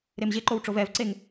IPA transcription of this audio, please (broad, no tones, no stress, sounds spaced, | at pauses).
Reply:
ɾ e m ʑ e ǃ o w ʈ͡ʂ o v ɛ v ǀ e ŋ